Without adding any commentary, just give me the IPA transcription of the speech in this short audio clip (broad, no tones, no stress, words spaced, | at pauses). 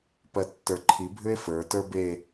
pɜtːə˞ǃʰi bʱʏe̯fə˞ tə˞be